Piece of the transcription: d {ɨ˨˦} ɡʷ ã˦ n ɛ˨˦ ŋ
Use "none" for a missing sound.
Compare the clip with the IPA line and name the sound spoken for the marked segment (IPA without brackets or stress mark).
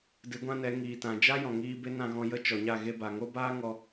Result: ɨ˨˦